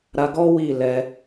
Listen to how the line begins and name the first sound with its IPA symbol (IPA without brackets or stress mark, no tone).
ɾ